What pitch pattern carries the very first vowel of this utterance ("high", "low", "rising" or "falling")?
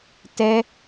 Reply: high